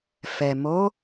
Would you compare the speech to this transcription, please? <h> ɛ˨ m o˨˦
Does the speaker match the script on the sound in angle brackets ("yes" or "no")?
no